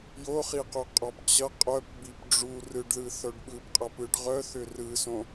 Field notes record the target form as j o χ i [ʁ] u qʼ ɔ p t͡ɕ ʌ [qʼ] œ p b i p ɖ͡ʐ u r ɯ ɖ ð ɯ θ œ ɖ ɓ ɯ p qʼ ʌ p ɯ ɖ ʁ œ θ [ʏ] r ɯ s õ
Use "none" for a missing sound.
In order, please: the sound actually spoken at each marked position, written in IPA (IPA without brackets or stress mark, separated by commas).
q, qʼ, ʏ